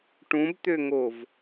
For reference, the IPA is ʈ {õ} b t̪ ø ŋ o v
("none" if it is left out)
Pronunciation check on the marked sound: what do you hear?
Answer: ũ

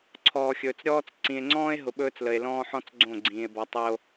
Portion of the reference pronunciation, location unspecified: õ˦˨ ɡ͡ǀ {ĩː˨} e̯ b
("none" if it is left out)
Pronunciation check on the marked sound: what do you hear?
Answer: ĩː˨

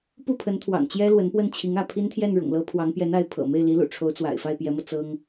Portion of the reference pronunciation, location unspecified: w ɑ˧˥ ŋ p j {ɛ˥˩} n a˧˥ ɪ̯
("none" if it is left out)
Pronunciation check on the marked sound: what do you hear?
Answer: ɛ˧˥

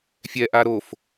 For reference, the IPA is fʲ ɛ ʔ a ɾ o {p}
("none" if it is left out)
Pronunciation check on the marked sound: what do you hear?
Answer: f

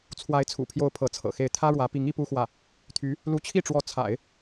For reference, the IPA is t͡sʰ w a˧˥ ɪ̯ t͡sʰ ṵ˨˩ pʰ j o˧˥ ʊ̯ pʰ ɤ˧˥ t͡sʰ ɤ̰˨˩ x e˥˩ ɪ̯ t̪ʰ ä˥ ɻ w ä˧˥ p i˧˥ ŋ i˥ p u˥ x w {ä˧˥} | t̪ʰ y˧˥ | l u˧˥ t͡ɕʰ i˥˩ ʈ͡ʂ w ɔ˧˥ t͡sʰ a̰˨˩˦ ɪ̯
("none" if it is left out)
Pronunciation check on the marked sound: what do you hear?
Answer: ä˥˩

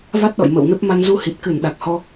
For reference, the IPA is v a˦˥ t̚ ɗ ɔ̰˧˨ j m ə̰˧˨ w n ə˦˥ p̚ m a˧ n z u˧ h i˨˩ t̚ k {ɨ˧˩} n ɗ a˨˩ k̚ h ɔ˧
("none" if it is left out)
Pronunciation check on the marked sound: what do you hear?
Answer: ɨ˧˩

